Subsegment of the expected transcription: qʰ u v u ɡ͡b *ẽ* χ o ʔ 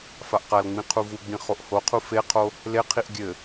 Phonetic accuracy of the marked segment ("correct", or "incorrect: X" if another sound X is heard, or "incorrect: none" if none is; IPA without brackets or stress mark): incorrect: ĩ